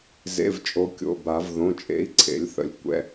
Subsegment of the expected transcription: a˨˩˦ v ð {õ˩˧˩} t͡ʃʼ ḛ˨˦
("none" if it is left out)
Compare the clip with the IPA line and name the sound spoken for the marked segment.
õ˩˧˩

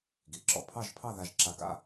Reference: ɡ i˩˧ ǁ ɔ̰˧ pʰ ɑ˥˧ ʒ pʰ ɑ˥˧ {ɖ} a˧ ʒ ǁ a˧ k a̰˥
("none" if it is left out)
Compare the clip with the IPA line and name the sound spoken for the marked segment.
ð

